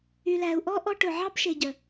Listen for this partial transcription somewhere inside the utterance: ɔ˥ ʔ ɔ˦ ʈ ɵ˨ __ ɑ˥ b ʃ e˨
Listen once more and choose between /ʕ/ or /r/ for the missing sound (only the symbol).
ʕ